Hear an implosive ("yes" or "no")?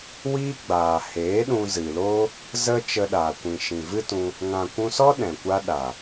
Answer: yes